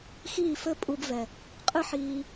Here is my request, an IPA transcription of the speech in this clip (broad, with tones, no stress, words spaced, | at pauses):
xiː˦˨fɘ˦pʼu˧bvɛ˨ | qʼɨ˦ħiː˧